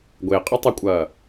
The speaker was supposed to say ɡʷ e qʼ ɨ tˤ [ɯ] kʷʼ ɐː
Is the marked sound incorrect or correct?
incorrect: u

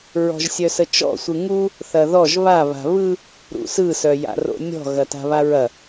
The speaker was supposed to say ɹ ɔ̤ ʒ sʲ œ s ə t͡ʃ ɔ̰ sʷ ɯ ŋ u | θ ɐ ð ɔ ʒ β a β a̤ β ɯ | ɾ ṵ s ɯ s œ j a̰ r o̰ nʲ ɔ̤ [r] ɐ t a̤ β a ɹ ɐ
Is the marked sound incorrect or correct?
incorrect: ɣ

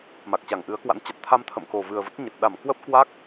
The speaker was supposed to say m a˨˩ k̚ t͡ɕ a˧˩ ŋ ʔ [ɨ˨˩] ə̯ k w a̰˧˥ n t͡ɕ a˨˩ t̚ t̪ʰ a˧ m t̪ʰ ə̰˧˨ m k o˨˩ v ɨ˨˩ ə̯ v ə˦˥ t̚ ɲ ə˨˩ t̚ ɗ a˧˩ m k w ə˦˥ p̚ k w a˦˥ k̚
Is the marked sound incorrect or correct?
incorrect: ɨ˨˦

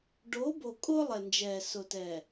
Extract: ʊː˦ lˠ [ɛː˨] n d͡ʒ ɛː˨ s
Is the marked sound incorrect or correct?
incorrect: ɛ˨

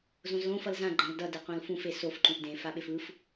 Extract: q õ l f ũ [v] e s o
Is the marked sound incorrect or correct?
incorrect: f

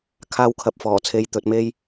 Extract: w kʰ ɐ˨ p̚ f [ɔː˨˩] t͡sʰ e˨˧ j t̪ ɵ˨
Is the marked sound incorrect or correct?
correct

